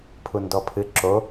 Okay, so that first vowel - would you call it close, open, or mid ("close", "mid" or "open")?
close